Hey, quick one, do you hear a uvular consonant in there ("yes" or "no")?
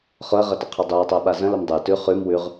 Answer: yes